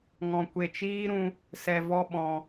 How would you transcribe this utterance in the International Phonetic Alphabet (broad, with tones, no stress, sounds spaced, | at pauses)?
ŋ ɔ̃˨ kʷ e˨ t͡ʃ iː˦ ɾ ũ˧ | s ɛ˧ v ɔ˦ ɓ ɔ̃˨